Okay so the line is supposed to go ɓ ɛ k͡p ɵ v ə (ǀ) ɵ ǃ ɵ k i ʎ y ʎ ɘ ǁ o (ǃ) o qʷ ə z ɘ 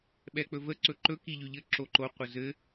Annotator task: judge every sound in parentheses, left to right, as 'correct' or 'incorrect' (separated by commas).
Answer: correct, correct